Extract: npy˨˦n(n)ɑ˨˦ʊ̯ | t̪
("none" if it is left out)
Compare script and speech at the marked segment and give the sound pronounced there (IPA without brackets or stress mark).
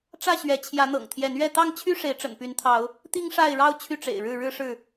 t̪ʰ